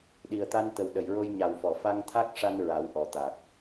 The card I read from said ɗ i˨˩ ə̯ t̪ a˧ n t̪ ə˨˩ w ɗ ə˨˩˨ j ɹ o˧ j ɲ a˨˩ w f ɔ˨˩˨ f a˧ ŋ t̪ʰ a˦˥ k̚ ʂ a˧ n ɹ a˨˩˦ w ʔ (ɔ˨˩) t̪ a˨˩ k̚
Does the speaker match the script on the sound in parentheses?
yes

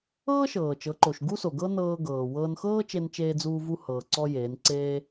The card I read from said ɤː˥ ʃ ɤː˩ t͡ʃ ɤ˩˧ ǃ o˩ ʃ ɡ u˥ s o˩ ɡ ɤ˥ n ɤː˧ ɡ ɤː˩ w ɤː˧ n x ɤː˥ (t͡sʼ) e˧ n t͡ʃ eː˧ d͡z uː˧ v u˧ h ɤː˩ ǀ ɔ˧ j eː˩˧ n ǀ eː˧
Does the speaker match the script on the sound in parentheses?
no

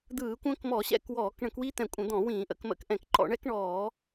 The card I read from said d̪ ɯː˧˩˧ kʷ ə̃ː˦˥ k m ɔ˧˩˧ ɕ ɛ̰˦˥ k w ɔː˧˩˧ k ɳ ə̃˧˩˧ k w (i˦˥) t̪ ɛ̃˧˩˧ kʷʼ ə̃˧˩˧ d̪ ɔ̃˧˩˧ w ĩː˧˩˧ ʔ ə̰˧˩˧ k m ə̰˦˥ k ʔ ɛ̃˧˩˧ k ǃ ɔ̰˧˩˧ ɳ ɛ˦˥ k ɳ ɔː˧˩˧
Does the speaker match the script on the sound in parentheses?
yes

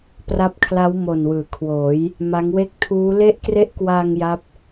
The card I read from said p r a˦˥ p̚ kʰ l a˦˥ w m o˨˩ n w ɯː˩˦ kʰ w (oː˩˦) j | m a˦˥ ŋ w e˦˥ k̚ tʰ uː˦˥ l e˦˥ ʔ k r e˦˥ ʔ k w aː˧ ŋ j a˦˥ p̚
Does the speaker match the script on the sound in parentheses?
yes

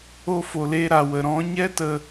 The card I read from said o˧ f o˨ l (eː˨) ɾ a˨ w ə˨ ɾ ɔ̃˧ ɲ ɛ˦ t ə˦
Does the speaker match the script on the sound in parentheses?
no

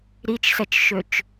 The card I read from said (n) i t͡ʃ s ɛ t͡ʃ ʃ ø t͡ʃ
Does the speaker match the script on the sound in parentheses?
no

